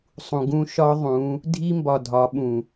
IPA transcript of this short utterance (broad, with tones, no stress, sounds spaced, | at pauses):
sˤ ũ˨ ɡ ũ˦ ʃ ɒ˦ ðˤ ũ˨˦ | dʱ i˦ m b ɒ˨ dʱ ɒ˨˦ ɓ ũ˨